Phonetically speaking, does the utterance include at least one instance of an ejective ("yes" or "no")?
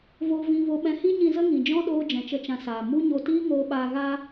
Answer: no